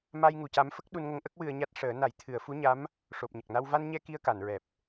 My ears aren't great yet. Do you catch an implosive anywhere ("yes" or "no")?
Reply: yes